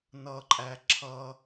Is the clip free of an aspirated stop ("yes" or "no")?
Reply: no